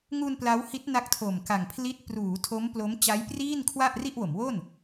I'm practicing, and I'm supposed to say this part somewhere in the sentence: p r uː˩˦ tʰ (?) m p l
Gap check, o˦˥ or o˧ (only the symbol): o˦˥